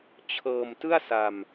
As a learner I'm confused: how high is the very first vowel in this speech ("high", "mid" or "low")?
mid